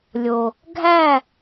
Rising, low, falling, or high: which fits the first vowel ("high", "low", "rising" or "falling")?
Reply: low